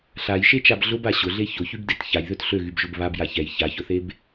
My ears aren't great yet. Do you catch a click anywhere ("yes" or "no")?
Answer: no